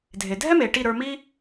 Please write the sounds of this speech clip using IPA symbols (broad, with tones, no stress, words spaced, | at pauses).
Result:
dʱe˩dʱɛ˥ me˩ʈi˥˩ ɾə˞˧ mi˥